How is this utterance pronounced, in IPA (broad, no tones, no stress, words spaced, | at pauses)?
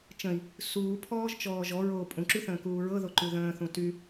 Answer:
t͡ʃə̃i̯ | suːpʰɔːʒ t͡ʃɔːʒɔ ɹoːpʼũǁyθə̃ː kuːɹɤðoǃʉ ðə̃ːθũ ty